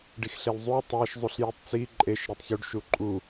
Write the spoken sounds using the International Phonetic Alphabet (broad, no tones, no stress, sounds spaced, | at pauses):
ɖ i x ɬ e l zˤ u tˤ æ ʃ zˤ u ɬ j i tˤ t͡s i ǃʼ e ʃ ɾ e tˤ ç u ɖ ʃ u ǃʼ u